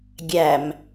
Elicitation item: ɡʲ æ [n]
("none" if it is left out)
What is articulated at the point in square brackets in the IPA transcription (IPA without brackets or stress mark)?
m